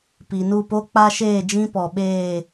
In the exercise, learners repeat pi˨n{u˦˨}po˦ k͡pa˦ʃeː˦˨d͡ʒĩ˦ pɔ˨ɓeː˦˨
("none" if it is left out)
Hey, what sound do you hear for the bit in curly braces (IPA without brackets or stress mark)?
u˦˨